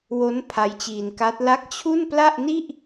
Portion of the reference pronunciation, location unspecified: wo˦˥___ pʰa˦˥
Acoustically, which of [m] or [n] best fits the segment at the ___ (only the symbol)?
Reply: n